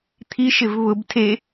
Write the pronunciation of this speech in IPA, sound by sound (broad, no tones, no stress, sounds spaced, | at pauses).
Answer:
t̪ʰ i ʃ ɪ v β ʊ b tʰ e